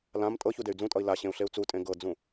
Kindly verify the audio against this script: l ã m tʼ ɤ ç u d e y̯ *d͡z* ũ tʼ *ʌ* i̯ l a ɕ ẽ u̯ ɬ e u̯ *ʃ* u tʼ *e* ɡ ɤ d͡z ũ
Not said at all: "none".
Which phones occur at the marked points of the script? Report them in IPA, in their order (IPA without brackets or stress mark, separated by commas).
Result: d͡z, ʌ, t͡s, ẽ